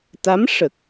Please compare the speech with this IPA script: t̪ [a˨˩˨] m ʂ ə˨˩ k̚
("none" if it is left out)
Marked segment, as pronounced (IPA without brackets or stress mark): a˧˥